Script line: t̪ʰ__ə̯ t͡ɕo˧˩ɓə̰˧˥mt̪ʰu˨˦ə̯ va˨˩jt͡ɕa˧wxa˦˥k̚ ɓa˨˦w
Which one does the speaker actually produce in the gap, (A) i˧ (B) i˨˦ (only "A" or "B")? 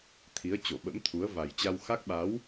B